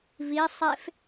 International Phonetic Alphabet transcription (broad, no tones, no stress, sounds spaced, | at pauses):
v i sˤ e f